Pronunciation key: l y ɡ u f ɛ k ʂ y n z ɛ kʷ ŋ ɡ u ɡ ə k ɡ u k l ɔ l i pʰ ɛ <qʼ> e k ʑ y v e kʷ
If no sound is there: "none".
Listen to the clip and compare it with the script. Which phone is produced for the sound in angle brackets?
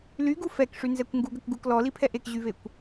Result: ʔ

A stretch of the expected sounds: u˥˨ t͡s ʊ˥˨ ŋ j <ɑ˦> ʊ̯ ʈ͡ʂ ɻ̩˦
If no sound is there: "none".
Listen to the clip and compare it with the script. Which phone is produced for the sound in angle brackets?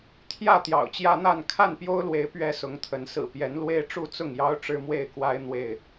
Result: ɑ˦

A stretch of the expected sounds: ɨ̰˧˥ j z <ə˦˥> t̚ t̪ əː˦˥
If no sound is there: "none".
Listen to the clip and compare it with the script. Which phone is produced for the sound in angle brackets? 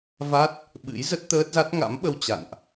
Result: ə˦˥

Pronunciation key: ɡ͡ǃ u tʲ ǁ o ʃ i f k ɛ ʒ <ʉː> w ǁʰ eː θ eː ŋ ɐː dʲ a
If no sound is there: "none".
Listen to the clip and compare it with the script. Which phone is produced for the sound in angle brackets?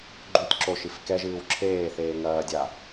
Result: ɨː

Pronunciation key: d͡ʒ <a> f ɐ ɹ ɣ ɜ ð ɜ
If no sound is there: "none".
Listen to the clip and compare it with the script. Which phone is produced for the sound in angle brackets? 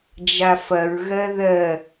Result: a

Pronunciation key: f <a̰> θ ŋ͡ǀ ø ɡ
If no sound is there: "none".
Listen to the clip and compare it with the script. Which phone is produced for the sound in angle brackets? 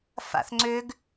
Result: a̰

